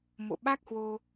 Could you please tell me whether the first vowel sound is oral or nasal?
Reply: oral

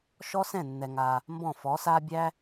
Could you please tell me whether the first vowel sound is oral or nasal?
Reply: oral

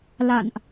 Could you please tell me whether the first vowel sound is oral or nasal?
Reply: oral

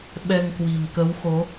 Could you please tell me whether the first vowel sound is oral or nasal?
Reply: oral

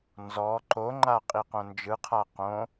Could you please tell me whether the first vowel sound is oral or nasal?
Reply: oral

